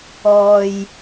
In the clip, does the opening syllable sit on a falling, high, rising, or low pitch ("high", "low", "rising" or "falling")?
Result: low